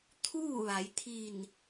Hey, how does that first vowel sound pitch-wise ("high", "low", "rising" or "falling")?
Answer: falling